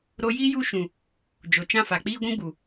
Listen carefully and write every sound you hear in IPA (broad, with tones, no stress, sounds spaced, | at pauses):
ɾ o˧ j iː˦ j u˦˨ ʃ ũ˨ | d͡ʒ o˨ t͡ʃ ã˦˨ f a˨ k͡p iː˦ ɡʷ ũ˦ ɡ͡b u˨